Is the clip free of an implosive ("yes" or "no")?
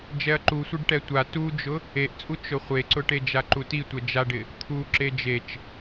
yes